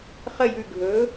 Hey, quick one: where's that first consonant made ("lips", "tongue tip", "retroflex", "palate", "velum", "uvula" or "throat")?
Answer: uvula